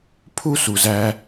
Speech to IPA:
pʰ u˦ s u˨ z æ˧

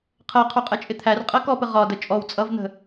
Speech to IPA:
qʰ ɜ qʰ u qʼ ɛ t͡ʃʼ ɪ t̪ʰ æ r qʼ ɜ k ɔ p ə ʁ ɒ d ə t͡ʃʼ ɔ w t͡sʼ ʌ v n̪ ə̤

